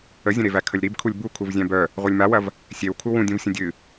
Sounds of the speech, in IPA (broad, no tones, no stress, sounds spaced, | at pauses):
ə zʲ ə̃ ɾ e v æ kʰ ə lʲ ɾ i b kʰ u lʲ b u kʰ u v zʲ æ̃ b œ | ʁʷ œ lʲ m a w ɐ v | sʲ e w kʰ u w ũ dʲ ũ v sʲ ə̃ dʲ ɨ